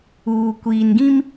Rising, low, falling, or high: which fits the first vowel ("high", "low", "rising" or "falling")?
low